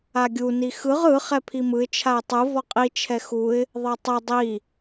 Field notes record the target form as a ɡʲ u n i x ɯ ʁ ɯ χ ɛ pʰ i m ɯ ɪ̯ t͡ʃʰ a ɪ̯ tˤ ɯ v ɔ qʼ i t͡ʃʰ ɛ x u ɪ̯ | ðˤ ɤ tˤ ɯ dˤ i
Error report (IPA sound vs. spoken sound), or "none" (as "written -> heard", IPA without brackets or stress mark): none